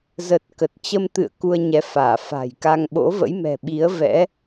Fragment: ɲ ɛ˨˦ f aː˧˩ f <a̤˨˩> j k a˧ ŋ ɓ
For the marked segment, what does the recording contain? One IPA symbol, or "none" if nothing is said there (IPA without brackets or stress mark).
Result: a̤˨˩